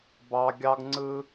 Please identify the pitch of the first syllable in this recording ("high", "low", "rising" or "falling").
high